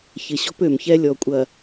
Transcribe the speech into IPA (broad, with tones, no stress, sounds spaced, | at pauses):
ç ɪ˨ ɕ ɔ̤˦ p ø˨ m ç ɛ˦ lʲ ɔ˨ kʷʼ ɐ˨